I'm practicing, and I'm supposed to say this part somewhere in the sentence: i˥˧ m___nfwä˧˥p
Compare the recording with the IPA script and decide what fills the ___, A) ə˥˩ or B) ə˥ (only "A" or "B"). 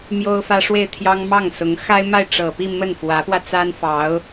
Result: A